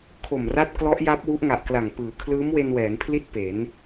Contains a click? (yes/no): no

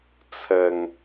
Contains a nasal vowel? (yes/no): no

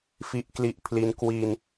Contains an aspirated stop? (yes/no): yes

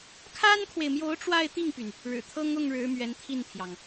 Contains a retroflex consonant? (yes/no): yes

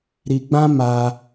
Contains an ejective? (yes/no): no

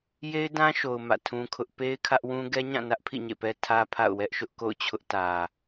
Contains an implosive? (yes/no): no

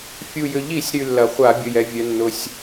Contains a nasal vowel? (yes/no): no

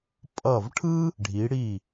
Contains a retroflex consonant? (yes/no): yes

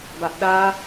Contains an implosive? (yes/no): yes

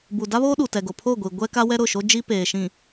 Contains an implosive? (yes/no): yes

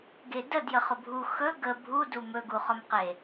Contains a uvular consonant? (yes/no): yes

